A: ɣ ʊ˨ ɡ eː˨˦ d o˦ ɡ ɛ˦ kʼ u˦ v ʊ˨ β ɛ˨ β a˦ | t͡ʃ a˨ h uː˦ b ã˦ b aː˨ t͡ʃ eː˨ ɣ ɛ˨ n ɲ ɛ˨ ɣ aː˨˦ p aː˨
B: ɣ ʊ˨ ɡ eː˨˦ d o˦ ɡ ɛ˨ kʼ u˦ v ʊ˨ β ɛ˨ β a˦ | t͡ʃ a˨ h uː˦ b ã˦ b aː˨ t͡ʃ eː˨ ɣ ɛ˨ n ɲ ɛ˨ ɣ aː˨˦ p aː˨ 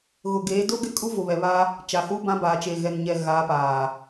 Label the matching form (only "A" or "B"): A